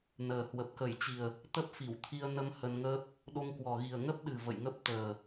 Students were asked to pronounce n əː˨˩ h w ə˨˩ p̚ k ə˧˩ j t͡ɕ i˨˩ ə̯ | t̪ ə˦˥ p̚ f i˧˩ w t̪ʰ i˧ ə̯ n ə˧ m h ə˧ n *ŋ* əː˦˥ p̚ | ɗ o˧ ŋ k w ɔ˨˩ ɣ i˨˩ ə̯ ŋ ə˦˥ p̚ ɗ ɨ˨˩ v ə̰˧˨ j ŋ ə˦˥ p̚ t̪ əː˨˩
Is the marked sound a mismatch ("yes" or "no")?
no